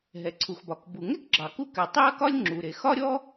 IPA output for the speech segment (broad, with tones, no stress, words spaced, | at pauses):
ɦɛ˩ǀʰu˩xbɒ˩k bu˩ŋɛ˥k ɡ͡ǁɑ˩ku˥kɛ˩ tˤe˥ɐ̯kɒ˥lʲŋ͡ǁu˩ ɾe˩ xɒ˥ɾʲɔ˥